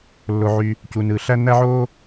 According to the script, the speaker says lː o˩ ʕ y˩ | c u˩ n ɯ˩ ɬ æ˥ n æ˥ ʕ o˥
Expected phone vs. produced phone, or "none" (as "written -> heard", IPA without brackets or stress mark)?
none